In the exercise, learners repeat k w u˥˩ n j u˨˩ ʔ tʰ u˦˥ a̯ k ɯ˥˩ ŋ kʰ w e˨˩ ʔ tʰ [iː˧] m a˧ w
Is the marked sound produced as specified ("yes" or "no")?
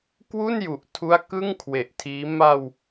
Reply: no